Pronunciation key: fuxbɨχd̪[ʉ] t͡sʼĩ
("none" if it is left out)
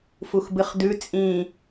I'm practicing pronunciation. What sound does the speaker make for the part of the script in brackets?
ʉ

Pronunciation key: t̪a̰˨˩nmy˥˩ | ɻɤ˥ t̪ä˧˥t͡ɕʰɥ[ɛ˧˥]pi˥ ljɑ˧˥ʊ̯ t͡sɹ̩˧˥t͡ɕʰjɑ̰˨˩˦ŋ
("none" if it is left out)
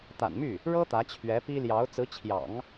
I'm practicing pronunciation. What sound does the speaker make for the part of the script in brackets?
ɛ˧˥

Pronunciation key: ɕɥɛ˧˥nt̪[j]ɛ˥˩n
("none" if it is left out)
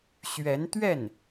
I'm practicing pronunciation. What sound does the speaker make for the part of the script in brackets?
ɥ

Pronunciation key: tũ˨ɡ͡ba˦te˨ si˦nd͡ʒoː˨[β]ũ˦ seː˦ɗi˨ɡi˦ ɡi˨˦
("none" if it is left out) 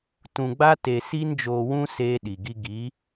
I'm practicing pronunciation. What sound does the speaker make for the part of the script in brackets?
w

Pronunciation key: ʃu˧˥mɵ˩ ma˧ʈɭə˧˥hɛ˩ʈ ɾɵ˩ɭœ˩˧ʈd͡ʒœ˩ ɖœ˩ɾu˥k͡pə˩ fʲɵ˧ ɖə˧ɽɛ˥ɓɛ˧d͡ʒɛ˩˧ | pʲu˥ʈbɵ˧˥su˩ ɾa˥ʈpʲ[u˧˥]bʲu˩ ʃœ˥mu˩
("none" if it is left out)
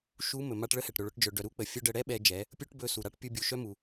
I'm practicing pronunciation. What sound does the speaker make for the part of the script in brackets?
u˧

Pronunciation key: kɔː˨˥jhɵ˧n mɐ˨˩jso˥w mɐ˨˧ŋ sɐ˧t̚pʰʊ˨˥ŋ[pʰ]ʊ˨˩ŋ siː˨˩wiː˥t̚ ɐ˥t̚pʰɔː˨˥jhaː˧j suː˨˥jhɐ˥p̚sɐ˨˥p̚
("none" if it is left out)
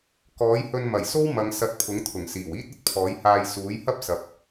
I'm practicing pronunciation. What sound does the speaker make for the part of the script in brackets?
t̪ʰ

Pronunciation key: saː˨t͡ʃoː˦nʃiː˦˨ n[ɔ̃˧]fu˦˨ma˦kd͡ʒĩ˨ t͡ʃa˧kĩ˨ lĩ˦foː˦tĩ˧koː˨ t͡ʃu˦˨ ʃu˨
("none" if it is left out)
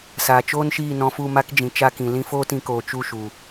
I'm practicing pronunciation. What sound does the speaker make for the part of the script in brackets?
ɔ̃˧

